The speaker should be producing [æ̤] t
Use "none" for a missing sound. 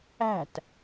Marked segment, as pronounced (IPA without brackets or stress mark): æ̤